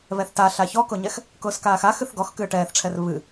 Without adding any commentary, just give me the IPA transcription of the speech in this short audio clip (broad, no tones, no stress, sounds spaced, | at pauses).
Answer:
β ɛ θ t a ɬ a ç ɔ k ʊ ɲ ɛ x | k ʊː s k aː x a x ɨ θ ɡ ɔ x k ɨː ʈ ɛː θ ʈ͡ʂʰ ɛ r β ɨ